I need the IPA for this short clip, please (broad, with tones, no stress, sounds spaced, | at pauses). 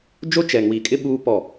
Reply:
d͡ʒ o˦ t͡ʃ ɛ˨ ŋ w i˨ kʼ ɪ˦ ɓ uː˦ p ɔ˦˨